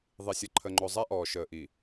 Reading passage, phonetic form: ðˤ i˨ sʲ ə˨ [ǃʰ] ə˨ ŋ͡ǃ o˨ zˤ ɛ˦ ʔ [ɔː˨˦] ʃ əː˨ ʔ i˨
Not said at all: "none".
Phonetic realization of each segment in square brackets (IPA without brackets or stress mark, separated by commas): ǃʰ, ɔː˨